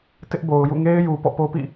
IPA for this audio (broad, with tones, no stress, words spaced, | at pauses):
tɪ˦ʔbo˨ʊ̯jṵ˦˨ ŋe˦ɪ̯ju˨ pɔ̰˦˨po˦ pḭ˦˨